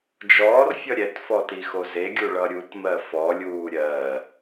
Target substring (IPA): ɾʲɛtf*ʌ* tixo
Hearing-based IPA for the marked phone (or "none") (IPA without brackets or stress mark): ɔ